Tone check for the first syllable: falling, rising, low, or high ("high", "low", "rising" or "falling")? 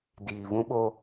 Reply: low